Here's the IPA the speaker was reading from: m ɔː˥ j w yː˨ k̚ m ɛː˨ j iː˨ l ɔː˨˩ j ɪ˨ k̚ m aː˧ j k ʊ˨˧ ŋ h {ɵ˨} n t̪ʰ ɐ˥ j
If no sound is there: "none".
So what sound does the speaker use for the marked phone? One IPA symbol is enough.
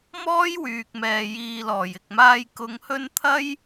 ɵ˧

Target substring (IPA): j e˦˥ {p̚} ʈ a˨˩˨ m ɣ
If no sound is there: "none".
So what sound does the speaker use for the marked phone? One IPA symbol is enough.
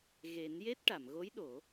t̚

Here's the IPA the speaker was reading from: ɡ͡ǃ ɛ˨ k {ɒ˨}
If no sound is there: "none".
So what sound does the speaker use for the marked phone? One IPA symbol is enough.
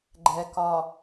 ɒ˨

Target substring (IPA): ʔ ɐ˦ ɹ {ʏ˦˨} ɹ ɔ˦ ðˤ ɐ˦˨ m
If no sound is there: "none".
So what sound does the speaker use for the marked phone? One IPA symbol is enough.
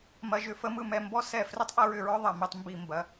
ʏ˦˨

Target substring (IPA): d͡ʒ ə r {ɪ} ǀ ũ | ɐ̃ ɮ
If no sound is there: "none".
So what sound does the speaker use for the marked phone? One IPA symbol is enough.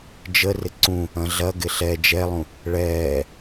ɪ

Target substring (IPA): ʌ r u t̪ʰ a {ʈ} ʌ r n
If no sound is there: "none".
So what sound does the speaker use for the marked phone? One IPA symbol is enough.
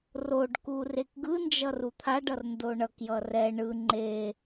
ɖ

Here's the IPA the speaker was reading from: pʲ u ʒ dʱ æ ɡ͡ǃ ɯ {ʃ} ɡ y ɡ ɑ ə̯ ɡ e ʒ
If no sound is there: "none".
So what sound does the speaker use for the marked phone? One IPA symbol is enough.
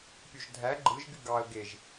ʒ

